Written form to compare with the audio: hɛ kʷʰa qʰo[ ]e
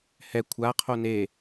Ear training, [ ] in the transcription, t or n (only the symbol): n